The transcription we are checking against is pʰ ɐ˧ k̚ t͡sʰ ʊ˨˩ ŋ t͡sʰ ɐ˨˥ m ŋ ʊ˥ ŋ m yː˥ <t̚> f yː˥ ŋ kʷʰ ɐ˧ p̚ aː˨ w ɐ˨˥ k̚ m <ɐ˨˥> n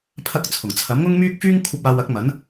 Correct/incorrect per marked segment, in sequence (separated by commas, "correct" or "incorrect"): incorrect, correct